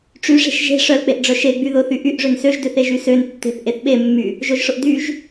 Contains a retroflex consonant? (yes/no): yes